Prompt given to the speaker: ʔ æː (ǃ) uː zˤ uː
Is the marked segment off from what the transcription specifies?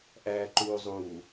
no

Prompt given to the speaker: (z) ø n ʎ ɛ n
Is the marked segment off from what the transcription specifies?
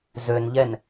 no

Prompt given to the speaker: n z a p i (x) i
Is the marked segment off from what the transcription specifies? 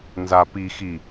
no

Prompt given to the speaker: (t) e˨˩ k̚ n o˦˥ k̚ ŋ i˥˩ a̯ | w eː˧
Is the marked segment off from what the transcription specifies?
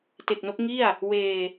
no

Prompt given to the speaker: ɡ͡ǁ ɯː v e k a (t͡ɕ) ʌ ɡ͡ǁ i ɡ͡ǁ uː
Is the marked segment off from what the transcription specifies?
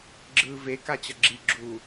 no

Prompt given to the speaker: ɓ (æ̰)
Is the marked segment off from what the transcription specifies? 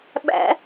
no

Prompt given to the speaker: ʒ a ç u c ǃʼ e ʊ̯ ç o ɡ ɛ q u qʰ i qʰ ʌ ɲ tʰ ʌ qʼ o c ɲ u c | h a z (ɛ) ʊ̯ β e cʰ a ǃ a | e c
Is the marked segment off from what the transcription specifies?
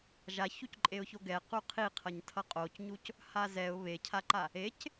no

